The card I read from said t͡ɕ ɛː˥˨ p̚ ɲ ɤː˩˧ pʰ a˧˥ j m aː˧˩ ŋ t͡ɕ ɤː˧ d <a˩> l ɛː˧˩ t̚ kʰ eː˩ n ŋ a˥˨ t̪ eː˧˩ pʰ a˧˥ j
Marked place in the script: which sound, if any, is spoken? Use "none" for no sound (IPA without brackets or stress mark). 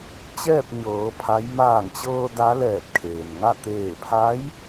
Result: a˧˥